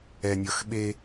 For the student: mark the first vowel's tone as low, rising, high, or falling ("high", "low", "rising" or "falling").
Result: low